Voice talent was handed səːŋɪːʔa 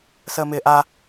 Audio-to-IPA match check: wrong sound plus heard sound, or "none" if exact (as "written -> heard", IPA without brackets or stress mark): ŋ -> m